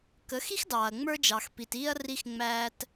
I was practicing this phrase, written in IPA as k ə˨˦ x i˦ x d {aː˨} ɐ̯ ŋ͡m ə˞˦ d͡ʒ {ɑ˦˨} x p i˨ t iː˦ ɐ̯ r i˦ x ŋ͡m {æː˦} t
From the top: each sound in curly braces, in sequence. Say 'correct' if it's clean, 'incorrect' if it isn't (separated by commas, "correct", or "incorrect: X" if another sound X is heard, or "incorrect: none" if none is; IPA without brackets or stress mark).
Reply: incorrect: ɑː˨, incorrect: ɑ˨, correct